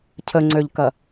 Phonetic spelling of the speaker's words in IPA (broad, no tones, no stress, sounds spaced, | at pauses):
cʰ ə ŋ͡ǀ ø ʎ k ɐ